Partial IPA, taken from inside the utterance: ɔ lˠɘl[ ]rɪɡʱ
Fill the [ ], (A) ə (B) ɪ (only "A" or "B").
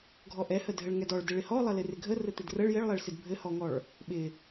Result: B